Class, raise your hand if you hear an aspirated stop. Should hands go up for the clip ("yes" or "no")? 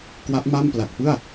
no